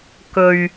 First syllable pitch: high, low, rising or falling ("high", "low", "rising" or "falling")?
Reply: low